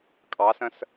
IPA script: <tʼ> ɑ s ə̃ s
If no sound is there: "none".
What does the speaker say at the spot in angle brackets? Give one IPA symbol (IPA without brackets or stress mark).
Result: kʼ